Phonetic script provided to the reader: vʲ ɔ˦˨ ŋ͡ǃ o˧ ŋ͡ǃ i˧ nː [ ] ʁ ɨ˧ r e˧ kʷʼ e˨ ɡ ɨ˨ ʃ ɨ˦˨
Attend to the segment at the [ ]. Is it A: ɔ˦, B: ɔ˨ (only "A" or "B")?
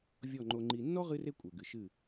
A